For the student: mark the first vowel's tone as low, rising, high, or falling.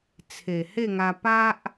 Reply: low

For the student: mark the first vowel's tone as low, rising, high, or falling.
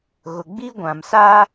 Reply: low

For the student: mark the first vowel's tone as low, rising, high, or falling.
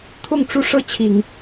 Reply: falling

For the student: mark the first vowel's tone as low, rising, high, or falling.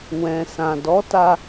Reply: low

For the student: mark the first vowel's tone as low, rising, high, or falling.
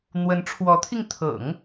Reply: rising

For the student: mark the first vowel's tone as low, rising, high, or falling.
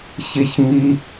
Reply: high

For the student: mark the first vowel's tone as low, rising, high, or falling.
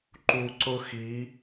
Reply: low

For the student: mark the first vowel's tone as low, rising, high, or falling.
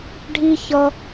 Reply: low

